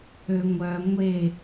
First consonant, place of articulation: velar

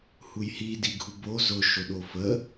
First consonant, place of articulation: glottal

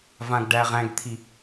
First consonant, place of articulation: labial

